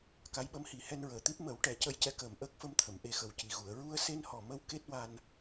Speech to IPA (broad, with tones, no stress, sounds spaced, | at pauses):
k a˧˥ j ɓ ə˧˥ m h i˨˩˦ h ɛ˧ n ɹ əː˨˩ t̪ i˦˥ p̚ m ə˨˩˦ w ʈ ɛ˨˩˦ c ə˧ j c ɛ˧˥ k əː˨˩ m ʔ əː˦˥ k̚ f ə˧ m t̪ʰ ə˨˩˨ m ʔ e˧ x ə˨˩ w c i˨˩ ɣ u˨˩˨ ə̯ ɹ u˧ ə̯ s e˧ n h ɔ˨˩ m ə˧ w k e˦˥ t̚ w a˧ n